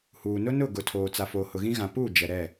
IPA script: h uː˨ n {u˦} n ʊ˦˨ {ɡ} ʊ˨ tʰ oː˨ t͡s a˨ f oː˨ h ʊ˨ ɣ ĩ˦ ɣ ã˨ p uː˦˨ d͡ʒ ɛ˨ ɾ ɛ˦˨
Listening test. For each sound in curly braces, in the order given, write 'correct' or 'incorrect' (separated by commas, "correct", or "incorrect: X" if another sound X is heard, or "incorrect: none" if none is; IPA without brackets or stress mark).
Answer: incorrect: ʊ˦, correct